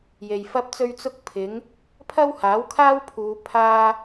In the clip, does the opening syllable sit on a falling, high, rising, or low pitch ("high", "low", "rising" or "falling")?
low